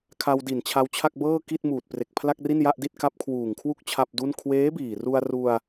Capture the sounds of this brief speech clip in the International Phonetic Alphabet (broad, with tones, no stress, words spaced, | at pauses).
kʰa˧wdi˨˩n t͡ɕʰa˧wt͡ɕʰa˥˩k̚bɤː˥˩ki˥˩t̚ muː˨˩t̚pre˨˩k̚pʰla˥˩k̚ri˥˩n ja˥˩ʔdi˥˩t̚ ka˦˥p̚kʰwuː˨˩ŋkʰwu˥˩k̚ t͡ɕʰa˥˩p̚du˥˩n kʰweː˦˥biː˨˩ru˧a̯ru˧a̯